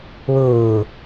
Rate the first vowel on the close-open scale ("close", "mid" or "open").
close